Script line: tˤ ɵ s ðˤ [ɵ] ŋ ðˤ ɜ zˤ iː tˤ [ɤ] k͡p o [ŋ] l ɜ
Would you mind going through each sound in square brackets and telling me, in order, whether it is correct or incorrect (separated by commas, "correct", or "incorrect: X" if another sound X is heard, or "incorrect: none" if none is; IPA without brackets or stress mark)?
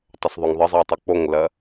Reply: correct, correct, correct